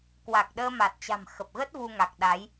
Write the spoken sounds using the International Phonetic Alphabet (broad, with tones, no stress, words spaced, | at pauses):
kwa˨˩k̚ɗəː˧ma˨˩t̚t͡ɕa̤˨˩m xə˨˩p̚ɣə˦˥t̚ vu˧ŋa˨˩k̚ ɗa˨˦j